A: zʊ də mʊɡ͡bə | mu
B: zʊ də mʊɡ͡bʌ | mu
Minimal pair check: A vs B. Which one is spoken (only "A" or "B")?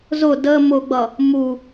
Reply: B